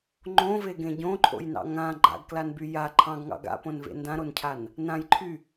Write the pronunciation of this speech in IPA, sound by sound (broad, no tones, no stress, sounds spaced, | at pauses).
ŋ͡ǃ õ v e ɡ ẽ ɟ õ ǃʰ o̰ j n ɑ̰ ŋ ã ɡ͡ǃ a̰ ɡ k l a n b y j a ǃʰ ɑ̃ ɡ ŋ ɑ̰ ɡ a̰ p õ n v ḛ n d ã ɾ o n cʰ a n | n ã j ǃʰ y